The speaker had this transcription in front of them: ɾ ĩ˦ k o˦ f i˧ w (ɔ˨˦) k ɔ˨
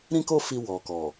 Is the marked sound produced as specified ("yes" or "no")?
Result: no